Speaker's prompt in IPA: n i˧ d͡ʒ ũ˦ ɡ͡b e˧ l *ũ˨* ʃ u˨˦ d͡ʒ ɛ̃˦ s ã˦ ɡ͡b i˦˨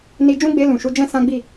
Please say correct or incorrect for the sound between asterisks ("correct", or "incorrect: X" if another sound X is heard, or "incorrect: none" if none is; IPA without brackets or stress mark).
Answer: correct